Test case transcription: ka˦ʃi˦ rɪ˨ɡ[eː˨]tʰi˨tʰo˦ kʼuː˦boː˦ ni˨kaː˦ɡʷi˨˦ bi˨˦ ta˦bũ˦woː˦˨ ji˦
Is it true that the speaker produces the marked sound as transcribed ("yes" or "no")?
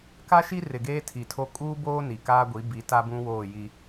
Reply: no